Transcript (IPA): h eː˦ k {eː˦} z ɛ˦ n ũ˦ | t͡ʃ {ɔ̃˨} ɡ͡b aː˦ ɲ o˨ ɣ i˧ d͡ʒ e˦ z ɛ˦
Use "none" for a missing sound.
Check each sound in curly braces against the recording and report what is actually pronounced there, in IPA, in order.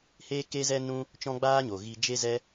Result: e˦, ɔ̃˦

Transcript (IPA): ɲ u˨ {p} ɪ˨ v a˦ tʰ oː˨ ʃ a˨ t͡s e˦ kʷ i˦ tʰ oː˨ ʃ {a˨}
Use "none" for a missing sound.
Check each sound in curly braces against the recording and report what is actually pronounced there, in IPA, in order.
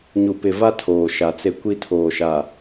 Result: p, a˨

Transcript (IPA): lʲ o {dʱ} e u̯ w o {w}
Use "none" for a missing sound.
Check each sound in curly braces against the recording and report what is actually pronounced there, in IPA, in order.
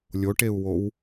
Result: ʈ, w

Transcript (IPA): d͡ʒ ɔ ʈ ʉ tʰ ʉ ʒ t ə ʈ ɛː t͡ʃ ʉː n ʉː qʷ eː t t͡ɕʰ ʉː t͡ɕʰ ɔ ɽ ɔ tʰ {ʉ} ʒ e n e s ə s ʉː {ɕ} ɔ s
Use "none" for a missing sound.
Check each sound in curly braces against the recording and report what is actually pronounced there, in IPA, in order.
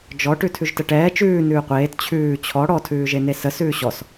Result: ʉː, ɕ

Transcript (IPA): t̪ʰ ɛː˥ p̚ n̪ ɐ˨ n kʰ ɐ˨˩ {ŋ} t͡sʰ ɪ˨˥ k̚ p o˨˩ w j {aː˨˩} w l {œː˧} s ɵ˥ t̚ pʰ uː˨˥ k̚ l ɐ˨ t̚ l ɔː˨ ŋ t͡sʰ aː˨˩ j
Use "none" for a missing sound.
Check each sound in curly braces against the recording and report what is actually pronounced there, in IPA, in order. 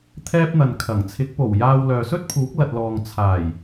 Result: ŋ, aː˧, œː˨

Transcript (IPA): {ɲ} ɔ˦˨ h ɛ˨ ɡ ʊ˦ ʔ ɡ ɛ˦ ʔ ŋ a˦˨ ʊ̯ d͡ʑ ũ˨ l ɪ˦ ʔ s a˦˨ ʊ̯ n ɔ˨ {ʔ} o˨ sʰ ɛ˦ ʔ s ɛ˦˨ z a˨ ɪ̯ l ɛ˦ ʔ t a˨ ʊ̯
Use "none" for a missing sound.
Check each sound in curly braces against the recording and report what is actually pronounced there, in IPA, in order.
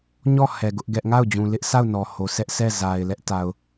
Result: ɲ, h

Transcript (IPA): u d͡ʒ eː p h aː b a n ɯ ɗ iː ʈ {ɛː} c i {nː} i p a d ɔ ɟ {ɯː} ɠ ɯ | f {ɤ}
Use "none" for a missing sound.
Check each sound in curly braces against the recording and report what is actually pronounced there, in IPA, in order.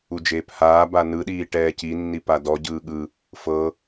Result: ɛː, nː, ɯː, ɤ

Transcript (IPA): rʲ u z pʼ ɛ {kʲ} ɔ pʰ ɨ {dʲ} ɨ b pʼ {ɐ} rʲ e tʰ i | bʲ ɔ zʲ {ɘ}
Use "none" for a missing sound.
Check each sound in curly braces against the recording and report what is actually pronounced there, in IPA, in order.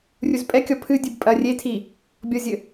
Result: kʲ, dʲ, ɐ, ɘ

